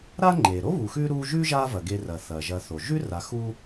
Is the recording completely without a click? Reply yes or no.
no